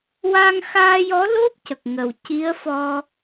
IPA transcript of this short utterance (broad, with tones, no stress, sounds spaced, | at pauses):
w a˧ ŋ x aː˧ j ɔ˧˥ l o˦˥ p̚ c ə˨˩ k̚ ŋ ə˨˩ w c i˧˥ ə̯ f ɔ˧